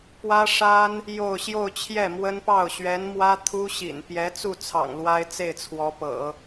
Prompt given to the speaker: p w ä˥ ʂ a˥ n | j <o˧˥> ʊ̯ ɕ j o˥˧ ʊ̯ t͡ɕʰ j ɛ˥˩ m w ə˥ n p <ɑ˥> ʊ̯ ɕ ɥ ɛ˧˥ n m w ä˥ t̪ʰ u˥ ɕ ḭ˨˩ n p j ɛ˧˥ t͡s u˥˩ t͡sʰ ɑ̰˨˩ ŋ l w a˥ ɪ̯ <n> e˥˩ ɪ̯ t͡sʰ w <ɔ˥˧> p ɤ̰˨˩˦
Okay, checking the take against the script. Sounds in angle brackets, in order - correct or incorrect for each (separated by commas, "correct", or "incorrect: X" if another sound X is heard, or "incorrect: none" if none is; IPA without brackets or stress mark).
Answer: incorrect: o˥˧, incorrect: ɑ˥˩, incorrect: t͡s, incorrect: ɔ˧˥